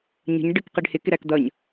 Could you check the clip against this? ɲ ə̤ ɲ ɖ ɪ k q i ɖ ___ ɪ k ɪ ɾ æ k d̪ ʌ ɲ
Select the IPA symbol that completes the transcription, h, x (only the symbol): h